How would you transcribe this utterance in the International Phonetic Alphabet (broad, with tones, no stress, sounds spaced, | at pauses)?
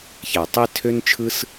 ç æ˨ tˤ i˦ tʰ ø˦ n t͡ʃʰ ɯ˦ s